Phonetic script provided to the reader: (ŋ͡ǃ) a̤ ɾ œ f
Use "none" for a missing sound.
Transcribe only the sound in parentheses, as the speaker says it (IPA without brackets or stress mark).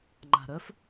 ŋ͡ǃ